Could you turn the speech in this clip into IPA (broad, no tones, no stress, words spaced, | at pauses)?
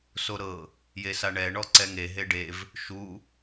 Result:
soɾɤ | jesaɳɛ ɳɔǀɛŋe ɦeɖev | ʃu